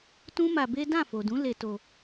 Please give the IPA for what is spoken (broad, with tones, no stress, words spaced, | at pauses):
tũ˦ma˧be˦ dã˦˨fo˨dũ˨˦ le˧to˧